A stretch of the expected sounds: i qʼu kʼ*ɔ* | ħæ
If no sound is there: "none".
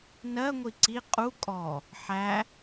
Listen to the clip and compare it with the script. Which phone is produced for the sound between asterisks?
ɔ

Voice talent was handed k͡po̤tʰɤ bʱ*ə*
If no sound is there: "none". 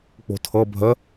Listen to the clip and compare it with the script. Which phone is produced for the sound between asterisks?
ə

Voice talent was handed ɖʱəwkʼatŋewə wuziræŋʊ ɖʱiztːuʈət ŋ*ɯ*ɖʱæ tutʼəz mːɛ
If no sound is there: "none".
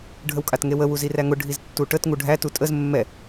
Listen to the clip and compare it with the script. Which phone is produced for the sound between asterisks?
u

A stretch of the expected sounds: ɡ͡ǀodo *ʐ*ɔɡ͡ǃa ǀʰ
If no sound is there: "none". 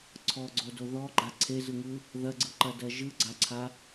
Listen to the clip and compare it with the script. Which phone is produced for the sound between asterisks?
ð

